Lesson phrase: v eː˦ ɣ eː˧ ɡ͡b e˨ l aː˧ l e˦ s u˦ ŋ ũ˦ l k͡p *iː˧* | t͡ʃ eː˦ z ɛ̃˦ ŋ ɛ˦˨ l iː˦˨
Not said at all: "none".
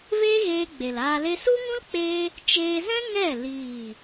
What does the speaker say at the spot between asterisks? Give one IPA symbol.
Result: eː˧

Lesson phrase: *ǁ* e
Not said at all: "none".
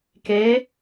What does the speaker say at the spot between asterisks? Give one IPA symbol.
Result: k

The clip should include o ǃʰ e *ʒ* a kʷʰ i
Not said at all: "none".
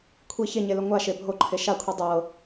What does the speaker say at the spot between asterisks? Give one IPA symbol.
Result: ʃ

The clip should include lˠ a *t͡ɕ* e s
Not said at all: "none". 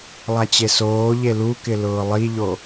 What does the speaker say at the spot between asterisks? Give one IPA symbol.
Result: t͡ɕ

